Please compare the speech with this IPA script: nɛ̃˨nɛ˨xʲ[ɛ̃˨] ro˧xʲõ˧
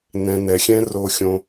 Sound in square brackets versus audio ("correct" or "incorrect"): incorrect